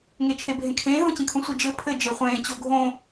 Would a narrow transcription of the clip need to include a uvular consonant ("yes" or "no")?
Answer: yes